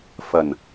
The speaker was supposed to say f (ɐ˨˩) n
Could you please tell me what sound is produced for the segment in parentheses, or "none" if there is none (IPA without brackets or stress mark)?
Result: ɐ˨˩